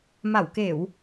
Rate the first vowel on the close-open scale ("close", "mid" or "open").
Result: open